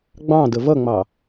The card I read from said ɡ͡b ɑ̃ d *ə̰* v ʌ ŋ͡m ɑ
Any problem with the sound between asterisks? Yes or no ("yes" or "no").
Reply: yes